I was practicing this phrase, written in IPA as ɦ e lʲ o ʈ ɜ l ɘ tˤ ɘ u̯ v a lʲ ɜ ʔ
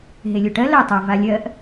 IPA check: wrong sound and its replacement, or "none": none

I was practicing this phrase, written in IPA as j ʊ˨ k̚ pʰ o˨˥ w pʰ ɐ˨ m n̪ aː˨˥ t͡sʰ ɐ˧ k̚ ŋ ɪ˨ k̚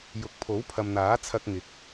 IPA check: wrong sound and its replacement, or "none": none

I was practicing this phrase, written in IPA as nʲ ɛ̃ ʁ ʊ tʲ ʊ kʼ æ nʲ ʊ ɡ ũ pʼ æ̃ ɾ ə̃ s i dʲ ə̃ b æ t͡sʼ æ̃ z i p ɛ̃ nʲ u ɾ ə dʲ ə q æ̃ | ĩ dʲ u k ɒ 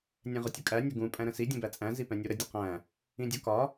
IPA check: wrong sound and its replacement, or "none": none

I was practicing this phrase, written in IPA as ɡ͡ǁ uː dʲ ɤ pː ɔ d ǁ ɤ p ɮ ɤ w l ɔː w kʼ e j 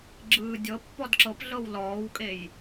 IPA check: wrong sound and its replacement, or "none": uː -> ɯː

